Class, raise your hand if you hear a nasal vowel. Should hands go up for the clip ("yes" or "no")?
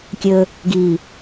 no